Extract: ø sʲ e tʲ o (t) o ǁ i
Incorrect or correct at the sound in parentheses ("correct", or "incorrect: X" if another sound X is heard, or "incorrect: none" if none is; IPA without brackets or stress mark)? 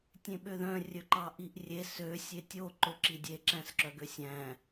incorrect: ǃ